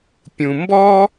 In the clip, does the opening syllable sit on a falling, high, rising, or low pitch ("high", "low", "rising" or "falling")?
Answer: low